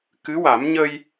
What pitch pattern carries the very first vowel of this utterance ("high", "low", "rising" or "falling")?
rising